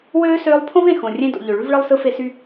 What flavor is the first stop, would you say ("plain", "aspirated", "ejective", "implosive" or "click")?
aspirated